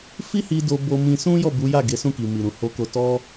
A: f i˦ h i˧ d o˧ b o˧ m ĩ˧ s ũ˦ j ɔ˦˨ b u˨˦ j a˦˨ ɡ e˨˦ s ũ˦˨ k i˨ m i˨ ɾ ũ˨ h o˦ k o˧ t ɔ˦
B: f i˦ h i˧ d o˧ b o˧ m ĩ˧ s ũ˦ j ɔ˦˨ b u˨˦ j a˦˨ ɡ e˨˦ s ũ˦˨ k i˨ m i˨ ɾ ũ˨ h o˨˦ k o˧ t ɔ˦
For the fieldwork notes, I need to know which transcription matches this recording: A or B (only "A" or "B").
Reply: B